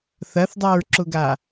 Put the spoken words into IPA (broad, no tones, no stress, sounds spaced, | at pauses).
θ ɐ θ dˤ a ɹ ǁ ʊ ɡ a